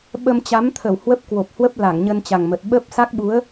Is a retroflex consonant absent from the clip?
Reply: yes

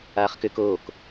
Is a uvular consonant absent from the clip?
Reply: no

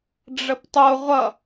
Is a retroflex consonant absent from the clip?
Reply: no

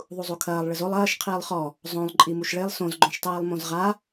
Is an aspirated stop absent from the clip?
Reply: no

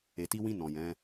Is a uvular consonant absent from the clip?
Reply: yes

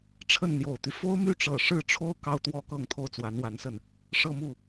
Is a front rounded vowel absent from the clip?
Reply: no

